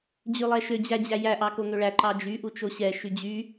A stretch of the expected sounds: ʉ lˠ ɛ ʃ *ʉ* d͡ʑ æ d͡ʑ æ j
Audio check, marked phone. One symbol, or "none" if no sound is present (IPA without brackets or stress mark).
ø